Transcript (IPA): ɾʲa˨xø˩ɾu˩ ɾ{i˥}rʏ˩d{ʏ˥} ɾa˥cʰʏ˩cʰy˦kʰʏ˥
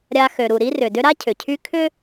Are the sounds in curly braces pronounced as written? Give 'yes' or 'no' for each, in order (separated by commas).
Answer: yes, yes